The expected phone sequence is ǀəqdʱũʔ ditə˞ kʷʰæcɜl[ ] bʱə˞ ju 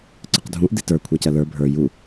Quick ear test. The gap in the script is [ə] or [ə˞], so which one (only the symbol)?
ə˞